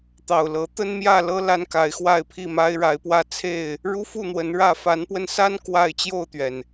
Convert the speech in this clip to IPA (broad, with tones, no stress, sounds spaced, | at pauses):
t̪ ɑ˨˩ ʊ̯ l ɤ˨˦ t̪ ə˦ n m j ä˥˨ l ɤ˦ l a˦ n k a˨˦ ɪ̯ x w a˥˨ ɪ̯ pʰ i˥˨ m a˦ ɪ̯ ɻ a˨˦ ɪ̯ p w ä˥˨ t͡sʰ e˥˨ ɪ̯ | ɻ u˦ f u˥˨ n̪ w ə˨˦ n ɻ ä˥˨ f a˨˦ n p w ə˧ n s a˦ n k w a˥˨ ɪ̯ t͡ɕ j o˥˨ ʊ̯ t̪ ɥ ɛ˩ n